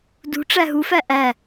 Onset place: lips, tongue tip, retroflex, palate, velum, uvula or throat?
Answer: tongue tip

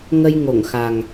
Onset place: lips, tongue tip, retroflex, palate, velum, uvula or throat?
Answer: velum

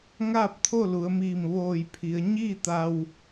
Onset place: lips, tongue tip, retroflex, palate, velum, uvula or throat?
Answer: velum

